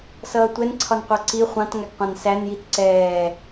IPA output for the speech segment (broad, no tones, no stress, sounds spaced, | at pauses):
s ʌː tʷ ɛ n ǀʰ ɒ n qʷ ɑ ǀ i χʷ ɑ̃ t ŋ æ ɡ qʷ ɑ̃ n s æ n j i t ǀ ɛː